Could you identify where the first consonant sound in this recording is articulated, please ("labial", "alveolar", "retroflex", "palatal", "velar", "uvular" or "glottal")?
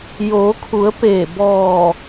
palatal